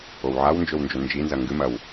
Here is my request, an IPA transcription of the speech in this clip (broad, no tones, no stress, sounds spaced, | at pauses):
o w ʕ a w n d͡ʒ ɵ w n d͡ʒ ɵ n d͡ʒ i n z ɐ ŋ ɡ ɨ m ɐ w